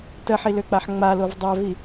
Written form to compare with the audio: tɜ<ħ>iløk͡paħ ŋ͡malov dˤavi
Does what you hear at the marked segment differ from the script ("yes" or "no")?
no